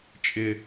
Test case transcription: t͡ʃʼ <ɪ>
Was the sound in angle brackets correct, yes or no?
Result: yes